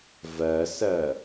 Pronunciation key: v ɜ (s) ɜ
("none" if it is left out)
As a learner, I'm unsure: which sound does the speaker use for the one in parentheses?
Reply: s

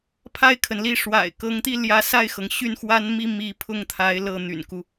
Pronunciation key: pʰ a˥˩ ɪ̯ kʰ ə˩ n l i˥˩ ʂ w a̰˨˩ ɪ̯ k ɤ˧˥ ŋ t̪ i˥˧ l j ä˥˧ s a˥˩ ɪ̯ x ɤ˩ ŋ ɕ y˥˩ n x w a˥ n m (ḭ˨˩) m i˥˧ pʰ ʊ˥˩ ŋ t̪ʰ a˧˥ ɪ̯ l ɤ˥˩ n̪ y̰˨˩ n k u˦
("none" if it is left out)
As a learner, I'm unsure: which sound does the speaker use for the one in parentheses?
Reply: i˥˧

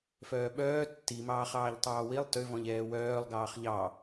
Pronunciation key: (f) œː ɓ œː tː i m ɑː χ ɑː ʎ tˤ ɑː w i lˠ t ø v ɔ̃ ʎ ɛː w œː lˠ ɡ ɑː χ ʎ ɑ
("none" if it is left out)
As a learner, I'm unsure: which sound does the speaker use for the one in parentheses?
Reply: f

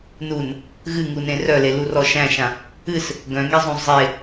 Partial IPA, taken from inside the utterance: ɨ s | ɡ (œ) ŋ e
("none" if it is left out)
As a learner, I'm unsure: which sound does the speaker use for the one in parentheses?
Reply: œ̃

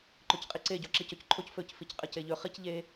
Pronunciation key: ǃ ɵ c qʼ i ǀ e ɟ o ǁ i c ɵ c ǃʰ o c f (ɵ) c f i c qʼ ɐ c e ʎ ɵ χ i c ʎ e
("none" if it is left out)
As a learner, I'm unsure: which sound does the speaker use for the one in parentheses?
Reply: ɵ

